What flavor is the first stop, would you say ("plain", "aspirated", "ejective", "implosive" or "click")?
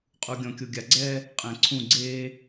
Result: ejective